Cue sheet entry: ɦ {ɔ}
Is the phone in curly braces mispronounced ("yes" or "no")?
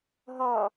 no